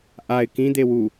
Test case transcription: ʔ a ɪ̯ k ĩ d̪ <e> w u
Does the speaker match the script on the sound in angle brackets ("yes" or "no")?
yes